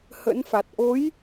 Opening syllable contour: rising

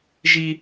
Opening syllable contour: high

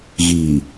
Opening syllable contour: low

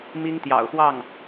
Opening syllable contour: high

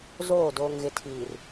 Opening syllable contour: falling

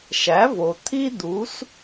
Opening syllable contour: rising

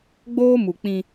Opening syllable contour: high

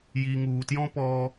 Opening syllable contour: low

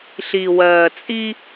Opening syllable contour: low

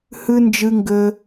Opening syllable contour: high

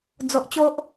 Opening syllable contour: low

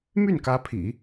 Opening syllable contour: falling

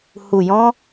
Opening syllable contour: low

